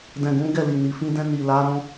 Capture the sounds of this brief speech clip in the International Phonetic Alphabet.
d ɛ̃˨ ɡ ũ˨˦ ɡ ɛ˦˨ l i˨ n i˨ f ĩ˧ d ɛ̃˧ n i˨ l a˨˦ ɾ ɔ̃˦

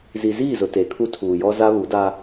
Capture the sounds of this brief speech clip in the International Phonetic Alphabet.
z i˨ z iː˦˨ z ʊ˨ t e˨˦ kʰ u˦ tʰ uː˨ j ɔ˦ z a˦ β u˨˦ d a˦

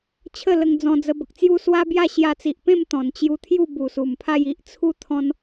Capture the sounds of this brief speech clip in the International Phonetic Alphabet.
t͡ɕʰ ə˥˧ l ə˧ ŋ d͡z ɔ̃˧ d͡z ə˧ b ə˨ k̚ t͡s j u˥˧ s w a˦ b j a˥˧ ɕ j a˧ t͡s i˨ ʔ p ẽ˥˧ m t̪ ɔ̃˨˩ n t͡ɕ j u˧ t̪ʰ j u˥˧ b u˨˩ s u˨˩ m pʰ a˥˧ j i˦ ʔ t͡sʰ u˦ t̪ʰ ɔ̃˦ n

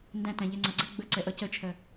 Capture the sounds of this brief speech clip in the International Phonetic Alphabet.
n d æ̃ t æ̃ ʎ ɛ ŋ͡ǀ ʌ ɡ͡ǀ ɛ ɡ͡b ə ǀ ɛ ʔ ʌ c ə t͡ʃʰ ɜ

